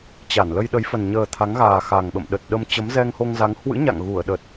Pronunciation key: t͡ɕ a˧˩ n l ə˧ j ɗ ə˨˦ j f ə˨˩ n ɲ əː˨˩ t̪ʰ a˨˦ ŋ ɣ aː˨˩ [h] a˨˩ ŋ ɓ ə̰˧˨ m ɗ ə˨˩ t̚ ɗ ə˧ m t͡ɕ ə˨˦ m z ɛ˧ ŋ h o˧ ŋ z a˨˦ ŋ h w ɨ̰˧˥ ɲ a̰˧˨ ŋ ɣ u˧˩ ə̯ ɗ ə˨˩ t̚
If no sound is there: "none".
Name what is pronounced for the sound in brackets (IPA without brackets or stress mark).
x